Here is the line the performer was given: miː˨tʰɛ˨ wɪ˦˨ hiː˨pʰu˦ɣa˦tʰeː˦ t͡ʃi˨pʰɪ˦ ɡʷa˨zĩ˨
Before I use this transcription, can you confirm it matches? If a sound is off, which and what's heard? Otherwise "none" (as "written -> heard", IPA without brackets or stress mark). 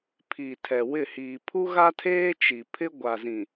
m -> pʰ